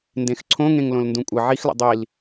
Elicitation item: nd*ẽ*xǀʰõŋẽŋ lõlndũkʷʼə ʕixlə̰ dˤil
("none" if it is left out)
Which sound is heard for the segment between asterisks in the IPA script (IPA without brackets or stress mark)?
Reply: ẽ